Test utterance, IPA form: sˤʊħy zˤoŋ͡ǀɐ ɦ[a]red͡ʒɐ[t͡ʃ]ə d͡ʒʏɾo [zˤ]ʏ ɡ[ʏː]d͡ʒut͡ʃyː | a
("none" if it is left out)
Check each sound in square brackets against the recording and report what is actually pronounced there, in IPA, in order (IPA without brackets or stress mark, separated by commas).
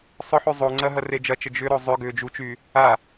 ɐ, t͡ʃ, zˤ, ʏː